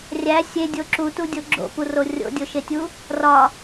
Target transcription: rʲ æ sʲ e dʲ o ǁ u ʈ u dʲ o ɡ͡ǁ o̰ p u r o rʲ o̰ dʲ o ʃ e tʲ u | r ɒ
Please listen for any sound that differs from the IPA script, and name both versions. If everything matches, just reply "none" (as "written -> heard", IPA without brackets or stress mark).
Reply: ʈ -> t